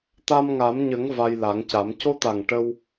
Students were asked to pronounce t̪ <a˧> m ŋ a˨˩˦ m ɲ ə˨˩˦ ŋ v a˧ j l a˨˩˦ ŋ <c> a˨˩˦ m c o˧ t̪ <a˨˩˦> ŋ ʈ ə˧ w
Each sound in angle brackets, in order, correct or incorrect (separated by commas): correct, correct, incorrect